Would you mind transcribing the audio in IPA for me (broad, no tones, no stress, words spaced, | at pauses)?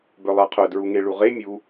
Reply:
bœlˠaqʰœ dɹuŋeɭuʁe mʲu